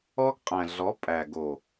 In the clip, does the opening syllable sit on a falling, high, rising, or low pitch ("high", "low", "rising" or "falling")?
high